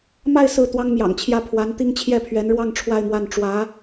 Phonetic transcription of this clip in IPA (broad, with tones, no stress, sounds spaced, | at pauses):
m a˥˧ ɪ̯ s ɹ̩˥˩ t̪ w ɑ˥ ŋ m j ɑ̰˨˩ ŋ t͡ɕʰ j ä˥˩ pʰ w a˧˥ n t̪ i˥ ŋ t͡ɕʰ j ɛ˥˩ pʰ ɥ ɛ˧˥ n ɻ w ɑ˥˧ ŋ ʈ͡ʂʰ w a˥˧ ɪ̯ m w a˥˩ n ʈ͡ʂ w ä˧˥